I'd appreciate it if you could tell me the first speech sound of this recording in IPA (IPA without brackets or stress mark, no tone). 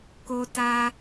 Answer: k